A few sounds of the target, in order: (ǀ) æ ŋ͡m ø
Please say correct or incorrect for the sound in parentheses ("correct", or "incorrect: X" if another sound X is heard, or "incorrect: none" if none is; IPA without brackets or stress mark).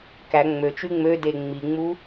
incorrect: k